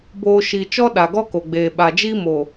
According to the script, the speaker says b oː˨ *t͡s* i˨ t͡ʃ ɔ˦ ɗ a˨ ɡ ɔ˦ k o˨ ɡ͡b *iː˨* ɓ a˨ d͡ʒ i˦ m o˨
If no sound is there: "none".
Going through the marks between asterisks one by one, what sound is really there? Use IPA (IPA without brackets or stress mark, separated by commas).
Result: ʃ, eː˨